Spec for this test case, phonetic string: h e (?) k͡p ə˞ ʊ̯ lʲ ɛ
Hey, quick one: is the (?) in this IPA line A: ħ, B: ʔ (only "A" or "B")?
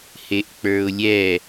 B